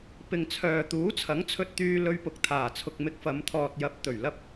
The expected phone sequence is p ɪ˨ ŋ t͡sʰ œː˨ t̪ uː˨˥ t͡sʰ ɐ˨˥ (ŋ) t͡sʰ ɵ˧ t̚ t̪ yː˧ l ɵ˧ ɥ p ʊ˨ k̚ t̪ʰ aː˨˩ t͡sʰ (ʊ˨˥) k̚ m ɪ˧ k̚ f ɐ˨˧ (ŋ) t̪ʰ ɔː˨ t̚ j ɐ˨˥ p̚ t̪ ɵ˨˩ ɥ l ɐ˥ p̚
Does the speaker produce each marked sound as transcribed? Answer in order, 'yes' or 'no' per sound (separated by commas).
yes, no, no